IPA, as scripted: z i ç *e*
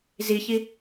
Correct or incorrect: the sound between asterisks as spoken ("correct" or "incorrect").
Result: incorrect